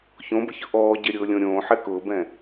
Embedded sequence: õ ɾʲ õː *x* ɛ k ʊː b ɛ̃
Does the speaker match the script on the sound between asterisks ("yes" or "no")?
no